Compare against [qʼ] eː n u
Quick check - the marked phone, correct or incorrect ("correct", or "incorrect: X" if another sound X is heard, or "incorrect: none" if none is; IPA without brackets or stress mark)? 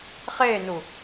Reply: incorrect: χ